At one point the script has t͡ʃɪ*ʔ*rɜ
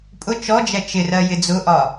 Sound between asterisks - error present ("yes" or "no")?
yes